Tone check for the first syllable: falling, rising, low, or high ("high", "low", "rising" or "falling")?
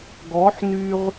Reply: rising